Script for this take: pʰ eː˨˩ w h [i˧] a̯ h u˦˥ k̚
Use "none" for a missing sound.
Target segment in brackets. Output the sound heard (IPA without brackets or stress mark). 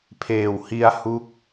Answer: i˧